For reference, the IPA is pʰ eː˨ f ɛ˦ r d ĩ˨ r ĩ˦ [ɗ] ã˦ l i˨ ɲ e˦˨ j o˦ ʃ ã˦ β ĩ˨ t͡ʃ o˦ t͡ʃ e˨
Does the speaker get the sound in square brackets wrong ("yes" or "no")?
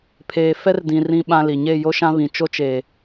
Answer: yes